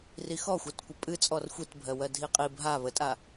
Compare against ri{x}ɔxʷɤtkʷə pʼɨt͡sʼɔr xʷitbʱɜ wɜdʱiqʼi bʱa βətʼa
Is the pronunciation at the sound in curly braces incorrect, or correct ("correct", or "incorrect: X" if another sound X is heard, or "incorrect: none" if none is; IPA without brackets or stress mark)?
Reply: correct